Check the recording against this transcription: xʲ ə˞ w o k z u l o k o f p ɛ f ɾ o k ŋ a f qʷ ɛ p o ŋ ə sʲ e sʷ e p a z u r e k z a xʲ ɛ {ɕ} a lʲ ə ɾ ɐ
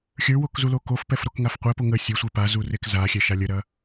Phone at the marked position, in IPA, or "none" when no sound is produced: ʃ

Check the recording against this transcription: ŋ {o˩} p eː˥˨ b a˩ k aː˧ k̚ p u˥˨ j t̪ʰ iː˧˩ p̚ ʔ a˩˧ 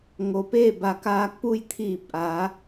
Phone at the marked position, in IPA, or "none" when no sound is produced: o˩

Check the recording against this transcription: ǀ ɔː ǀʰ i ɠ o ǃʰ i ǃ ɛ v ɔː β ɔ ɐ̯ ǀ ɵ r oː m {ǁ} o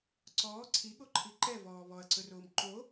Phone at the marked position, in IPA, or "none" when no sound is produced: ǃ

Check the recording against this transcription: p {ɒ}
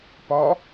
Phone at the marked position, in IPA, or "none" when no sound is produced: ɒ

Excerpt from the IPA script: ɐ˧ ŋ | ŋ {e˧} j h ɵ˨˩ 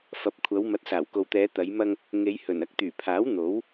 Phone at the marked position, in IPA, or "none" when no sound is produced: e˨˧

